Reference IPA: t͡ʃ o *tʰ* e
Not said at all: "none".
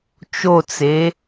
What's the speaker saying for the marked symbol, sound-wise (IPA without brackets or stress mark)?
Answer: t͡s